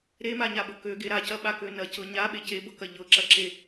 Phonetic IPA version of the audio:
ɾ e m a ɲ a ɓ ɤ k ø ɡ e ɾ a c ɐ ɓ a k ø n ɐ c ɤ ɲ a ɓ e c e b ɤ k ɐ ʎ ɤ ǁ ɐ ǁ e

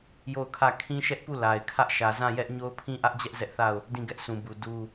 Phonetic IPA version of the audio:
j o˦˨ ʊ̯ kʰ ä˦˨ kʰ ĩ˦ ʃ ɛ˦ ʔ p u˦˨ l a˨ ɪ̯ kʰ ä˦ ʔ ʃ ä˨ z ã˦˨ j ɛ˦ ʔ ɲ o˦ ʊ̯ pʰ ĩ˦ ʔ ä˦ ʔ d͡ʑ ɛ˦ ʔ z ɛ˦ ʔ θ a˦˨ ʊ̯ | d ĩ˦˨ ɡ ɛ˦ ʔ sʰ ũ˨ b u˨ d u˦

